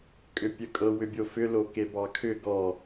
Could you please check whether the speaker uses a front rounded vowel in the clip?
yes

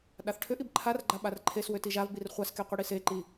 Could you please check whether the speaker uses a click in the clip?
yes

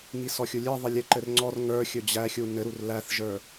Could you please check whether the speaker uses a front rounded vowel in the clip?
no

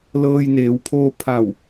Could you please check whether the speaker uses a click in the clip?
no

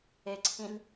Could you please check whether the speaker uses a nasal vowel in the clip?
yes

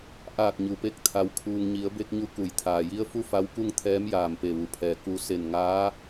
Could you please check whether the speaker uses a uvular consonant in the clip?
no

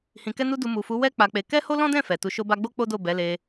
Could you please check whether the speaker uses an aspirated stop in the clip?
no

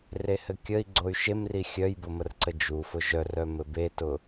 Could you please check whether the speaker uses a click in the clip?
yes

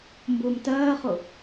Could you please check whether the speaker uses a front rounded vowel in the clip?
no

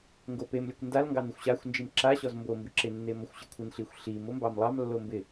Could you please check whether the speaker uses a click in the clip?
yes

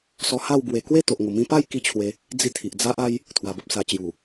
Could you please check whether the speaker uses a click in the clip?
no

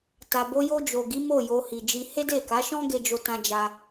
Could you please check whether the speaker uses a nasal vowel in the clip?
yes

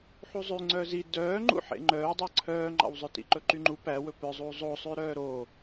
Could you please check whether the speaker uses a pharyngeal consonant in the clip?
yes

